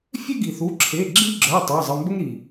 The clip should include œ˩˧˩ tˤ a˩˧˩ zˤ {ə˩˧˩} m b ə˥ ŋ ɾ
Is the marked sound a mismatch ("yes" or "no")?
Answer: no